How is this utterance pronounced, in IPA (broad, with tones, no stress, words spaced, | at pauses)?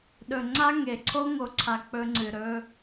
ɗɵ˨ŋ͡ǀa˦ŋe˨ ǀʰo˦ŋo˨ǀʰa˨ k͡pɵ˦ŋ͡ǀɨ˨ ɾɵ˦